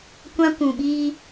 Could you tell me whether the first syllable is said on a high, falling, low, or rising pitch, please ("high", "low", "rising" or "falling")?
high